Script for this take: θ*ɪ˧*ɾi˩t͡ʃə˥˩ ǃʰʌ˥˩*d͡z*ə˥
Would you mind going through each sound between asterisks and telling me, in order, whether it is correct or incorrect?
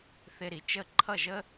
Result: correct, incorrect: ʒ

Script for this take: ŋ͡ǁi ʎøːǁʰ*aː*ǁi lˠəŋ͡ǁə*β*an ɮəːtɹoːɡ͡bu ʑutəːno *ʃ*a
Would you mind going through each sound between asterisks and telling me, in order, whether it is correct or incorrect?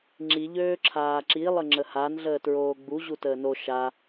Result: correct, incorrect: h, correct

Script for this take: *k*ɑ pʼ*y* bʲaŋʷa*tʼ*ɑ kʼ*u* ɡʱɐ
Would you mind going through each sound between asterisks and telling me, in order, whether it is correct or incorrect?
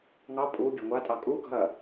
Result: incorrect: ŋ, incorrect: u, correct, correct

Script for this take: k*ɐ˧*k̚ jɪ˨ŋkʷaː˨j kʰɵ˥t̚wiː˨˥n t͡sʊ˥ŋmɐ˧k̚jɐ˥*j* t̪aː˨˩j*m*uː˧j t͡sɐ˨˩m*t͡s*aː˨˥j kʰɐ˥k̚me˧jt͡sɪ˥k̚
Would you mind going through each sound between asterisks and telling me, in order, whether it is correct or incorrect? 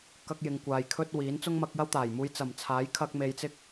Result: correct, incorrect: w, correct, incorrect: t͡sʰ

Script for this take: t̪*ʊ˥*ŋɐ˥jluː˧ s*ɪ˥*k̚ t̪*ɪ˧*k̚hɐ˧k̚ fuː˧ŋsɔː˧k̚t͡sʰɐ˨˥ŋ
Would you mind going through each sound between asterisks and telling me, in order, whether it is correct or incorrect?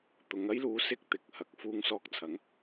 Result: incorrect: ʊ˨˧, correct, incorrect: ɪ˨

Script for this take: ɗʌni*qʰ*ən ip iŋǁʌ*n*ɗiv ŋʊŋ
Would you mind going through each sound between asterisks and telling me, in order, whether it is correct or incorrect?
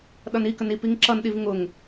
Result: incorrect: k, correct

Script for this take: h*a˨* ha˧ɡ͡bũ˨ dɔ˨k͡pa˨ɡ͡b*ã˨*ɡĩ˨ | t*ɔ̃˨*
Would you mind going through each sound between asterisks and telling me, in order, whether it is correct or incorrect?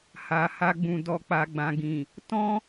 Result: correct, correct, incorrect: ɔ̃˦

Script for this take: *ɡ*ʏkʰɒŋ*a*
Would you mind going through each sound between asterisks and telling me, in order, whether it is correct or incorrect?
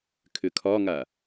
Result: incorrect: kʰ, correct

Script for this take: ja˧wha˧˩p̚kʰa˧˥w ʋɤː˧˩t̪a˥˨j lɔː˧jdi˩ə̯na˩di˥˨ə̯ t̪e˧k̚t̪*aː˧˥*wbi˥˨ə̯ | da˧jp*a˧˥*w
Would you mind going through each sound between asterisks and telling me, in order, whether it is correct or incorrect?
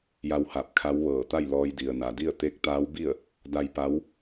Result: correct, correct

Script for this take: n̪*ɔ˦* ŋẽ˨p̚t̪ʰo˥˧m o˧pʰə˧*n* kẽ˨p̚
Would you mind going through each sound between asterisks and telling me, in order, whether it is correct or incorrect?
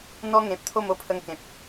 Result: correct, incorrect: ŋ

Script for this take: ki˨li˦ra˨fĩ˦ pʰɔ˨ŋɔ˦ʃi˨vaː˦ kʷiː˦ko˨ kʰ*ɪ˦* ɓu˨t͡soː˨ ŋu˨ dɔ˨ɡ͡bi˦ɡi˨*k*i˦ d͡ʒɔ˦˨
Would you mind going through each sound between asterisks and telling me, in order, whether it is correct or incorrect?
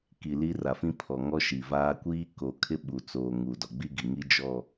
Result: correct, incorrect: ŋ

